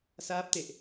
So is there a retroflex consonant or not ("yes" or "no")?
no